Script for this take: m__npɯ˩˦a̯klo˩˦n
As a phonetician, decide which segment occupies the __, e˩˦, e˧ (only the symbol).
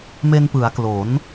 e˧